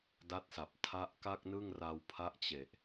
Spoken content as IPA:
d a˦˥ t̚ s a˨˩ p̚ tʰ a˦˥ ʔ k a˥˩ k̚ n ɯ˥˩ ŋ r a˧ w pʰ a˦˥ ʔ t͡ɕ e˨˩ ʔ

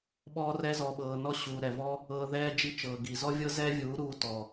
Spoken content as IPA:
ɓ ɔː˧ r ɛ˧ z ɔ˨ ɓ ɤː˨ n ɔ˦ ɕ uː˨ ɾ ɛ˨ v ɔ˦ | ɤː˧ ð ɛː˦ d͡ʒ i˦ t͡ʃ ɤː˨ ɡ i˨ z ɔ˦ vʲ ɤ˦ z ɛː˦ vʲ uː˨˦ ɾ uː˦ t ɔ˨

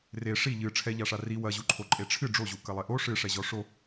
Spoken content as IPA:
r e ʂ i ʎ ɨ ʈ͡ʂʰ ɛ ʎ a ʂ a r i w ɐ ʑ u ǃʰ o ǃʼ e ʈ͡ʂʰ ɨ ɖ͡ʐ o ʑ u k ɐ lˠ e ʔ o ʂ ɨ ʂ ɛ ʑ ɔ ʂ o

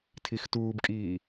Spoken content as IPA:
tʰ i x t uː b kʼ iː

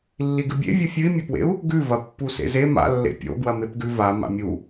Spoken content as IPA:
lː i ɡ ɨ bʲ ḛ vʲ u fʲ ɨ i̯ mʲ ɵ p w ḛ u̯ | ɡ ʉ v ɐ pː u s ḛ z e m a̰ lː ḛ pʲ o̰ ɡ w ɐ m e p ɡ ʉ v a m a̰ mʲ u

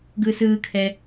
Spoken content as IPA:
ɡ ɯː s ɯː kʰ ɛ

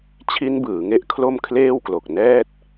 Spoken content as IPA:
t͡ɕʰ i˦˥ n b ɯː˩˦ ŋ e˦˥ ʔ kʰ l o˥˩ m kʰ l eː˥˩ w k l o˨˩ k̚ n ɛː˥˩ t̚

